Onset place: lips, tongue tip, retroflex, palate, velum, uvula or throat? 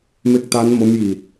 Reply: lips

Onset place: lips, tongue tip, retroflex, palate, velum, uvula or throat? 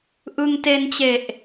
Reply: throat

